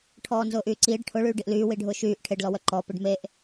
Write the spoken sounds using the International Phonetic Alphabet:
ʈʰ ɔː n z ʊː ʔ yː ǀ iː ɖ ʈʰ ʊ ɭ yː ɖ i ʔ l yː w i ɖʱ ʊː ʃ yː ʔ ʈʰ e ɖ l ɔ w œ ǃ ɔ p e ɖ m e ʔ

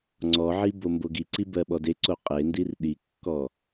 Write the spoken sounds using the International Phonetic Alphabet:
ŋ͡ǀ ɔ ʕ i b o m b o ɡ i ǀ i b ɜ ɓ ɔ d e ǀ o qʼ e n d i r ɗ i kː ɔ

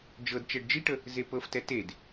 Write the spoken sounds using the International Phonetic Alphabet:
d͡ʒ ɤ d t͡ʃ ɛ ɖ d͡ʒ i ʈ ə | z e p ɤ f t ɛ t e d

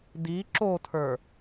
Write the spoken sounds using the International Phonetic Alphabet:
d i ǁ o tʰ ə˞

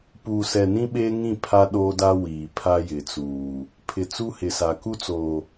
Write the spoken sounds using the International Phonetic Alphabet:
p uː˨ s ɛ˨ n ĩ˦ ɓ eː˦ ŋ ĩ˦˨ pʰ a˦ ɗ oː˦ d a˦ w iː˨ pʰ a˦ j ɪ˨ t͡s uː˨ | pʰ ɪ˨ t͡s u˦ h ɪ˨ s a˨ k u˦ t͡s oː˨

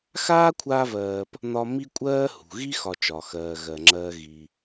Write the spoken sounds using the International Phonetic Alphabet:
x aː˥ kʷʰ aː˦ v ɜː˨ p | n ɒ˦ m i˥ kʷʼ ɜː˥ h ṳ˩ ɣ i˥ x ɒ˨ t͡ʃ ɒ˩ x ɜː˩ ɣ ɜ˩ ŋ͡ǁ ɜː˨ ɣ i˩

